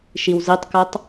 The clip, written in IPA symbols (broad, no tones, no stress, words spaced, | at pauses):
ʃiwzitˤkɜtˤ